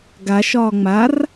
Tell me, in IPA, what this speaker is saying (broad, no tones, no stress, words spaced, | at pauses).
ɡaʃɒː ŋ͡mar